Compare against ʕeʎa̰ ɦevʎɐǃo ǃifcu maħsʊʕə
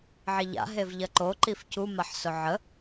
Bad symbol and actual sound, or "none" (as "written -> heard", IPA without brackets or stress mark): none